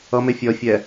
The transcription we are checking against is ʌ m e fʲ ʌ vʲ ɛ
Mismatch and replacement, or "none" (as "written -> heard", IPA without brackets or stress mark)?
vʲ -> fʲ